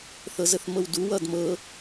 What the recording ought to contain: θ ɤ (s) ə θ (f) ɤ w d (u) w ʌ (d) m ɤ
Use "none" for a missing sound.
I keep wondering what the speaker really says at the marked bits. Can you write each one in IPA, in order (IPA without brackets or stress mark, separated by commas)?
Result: z, m, u, d